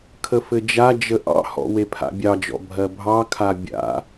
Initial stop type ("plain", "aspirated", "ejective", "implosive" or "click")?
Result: aspirated